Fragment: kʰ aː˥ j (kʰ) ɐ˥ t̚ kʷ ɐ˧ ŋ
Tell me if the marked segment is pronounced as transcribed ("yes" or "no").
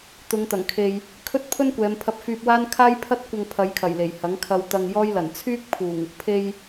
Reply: no